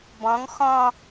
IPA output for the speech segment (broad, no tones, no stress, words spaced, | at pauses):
bɔ̃ŋ xɔ̃